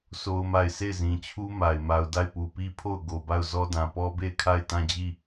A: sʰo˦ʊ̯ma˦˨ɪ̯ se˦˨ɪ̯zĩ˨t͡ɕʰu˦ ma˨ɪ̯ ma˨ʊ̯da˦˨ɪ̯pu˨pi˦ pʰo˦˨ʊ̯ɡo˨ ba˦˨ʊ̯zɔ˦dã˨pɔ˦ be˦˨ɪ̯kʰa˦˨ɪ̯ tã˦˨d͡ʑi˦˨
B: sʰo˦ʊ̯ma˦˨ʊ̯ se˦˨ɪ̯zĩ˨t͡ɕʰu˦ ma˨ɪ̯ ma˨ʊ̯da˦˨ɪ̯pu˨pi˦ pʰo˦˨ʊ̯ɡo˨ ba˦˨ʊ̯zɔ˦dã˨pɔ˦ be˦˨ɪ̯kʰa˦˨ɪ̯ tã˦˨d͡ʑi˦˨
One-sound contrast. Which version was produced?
A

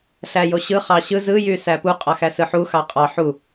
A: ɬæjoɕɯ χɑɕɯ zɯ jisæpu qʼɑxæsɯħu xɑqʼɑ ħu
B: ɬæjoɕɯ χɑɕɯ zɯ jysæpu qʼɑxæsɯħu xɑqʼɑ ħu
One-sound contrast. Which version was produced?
B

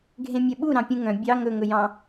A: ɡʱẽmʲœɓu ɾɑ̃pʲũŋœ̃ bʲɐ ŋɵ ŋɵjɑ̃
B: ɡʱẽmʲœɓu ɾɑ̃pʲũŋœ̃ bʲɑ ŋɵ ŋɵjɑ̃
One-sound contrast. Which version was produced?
B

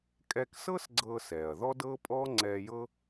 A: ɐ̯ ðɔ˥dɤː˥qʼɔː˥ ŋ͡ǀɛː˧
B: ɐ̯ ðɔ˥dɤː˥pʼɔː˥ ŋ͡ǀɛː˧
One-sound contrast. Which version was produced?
B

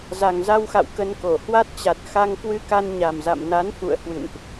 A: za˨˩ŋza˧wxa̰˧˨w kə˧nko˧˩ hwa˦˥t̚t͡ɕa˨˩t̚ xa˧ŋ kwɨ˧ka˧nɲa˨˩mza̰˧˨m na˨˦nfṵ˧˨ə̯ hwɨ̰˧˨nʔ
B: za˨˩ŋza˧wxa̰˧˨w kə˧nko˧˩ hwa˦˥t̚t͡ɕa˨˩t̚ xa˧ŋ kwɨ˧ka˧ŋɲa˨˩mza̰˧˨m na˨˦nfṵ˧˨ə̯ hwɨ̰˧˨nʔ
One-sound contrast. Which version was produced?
A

